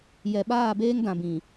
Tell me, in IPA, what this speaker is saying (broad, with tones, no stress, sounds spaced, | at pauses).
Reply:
j ɛ˨ ɓ aː˦˨ b eː˦ ŋ d ã˨ b ĩ˨